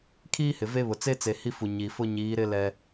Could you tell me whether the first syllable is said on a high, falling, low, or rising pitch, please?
high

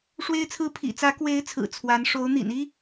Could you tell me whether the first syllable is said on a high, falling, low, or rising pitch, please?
high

